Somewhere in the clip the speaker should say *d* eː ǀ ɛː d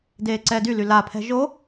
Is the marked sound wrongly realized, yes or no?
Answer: no